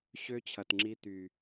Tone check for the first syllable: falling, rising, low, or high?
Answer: high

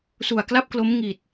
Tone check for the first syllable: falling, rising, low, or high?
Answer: low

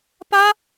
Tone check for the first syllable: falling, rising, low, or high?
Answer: high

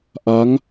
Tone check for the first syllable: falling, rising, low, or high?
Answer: rising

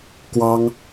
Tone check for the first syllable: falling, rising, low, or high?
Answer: high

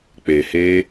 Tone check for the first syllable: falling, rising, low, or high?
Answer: low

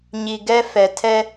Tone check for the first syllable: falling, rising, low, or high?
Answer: low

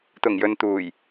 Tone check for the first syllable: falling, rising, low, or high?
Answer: low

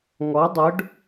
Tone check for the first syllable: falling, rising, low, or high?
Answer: rising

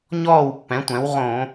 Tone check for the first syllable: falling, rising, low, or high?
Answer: falling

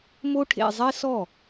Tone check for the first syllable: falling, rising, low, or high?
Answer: high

